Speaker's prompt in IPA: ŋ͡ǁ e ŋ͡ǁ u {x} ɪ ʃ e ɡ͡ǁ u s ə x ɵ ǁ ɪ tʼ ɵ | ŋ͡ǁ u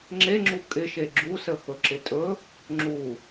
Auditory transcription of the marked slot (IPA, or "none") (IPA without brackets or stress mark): kʼ